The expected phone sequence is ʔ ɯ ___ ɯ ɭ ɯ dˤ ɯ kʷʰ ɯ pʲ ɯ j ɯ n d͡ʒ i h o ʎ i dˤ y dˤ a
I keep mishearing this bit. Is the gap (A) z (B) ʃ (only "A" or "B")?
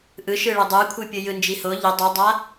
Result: B